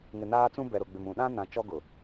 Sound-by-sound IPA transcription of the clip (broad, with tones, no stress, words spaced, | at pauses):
ŋɪ˨naː˦t͡sũ˦bɛ˨ ɾʊ˨ɡ͡bɪ˨mũ˨ ɗã˦ nã˨t͡ʃɔ˦ ɡʊ˨